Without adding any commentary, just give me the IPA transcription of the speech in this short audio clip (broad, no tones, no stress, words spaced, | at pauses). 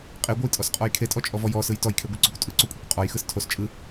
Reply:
qʼeɡʷɯjtʼɔsqʼɔj kʰetʼɔt͡ʃʼɔvɔ jɔsɯj tɔjkʰeɡʷeǀokʷ tʼɯǀokʷʼekʷ qʼɔjxɯs tʰos t͡ʃʼɯ